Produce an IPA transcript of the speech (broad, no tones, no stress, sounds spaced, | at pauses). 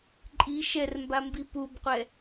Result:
ǃʼ i ʃ ɛ r m b a m b i p u b qʷ ɛ